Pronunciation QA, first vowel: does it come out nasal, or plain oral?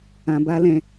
nasal